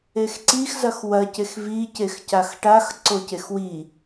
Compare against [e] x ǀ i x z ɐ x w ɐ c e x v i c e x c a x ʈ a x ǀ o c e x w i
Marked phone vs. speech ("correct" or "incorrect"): correct